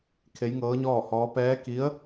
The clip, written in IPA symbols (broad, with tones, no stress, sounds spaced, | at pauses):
kʰ e˧˥ j ŋ ɤː˧˥ ɲ ɔː˥˨ h ɔː˧˥ p ɛː˧˥ k i˧˥ ə̯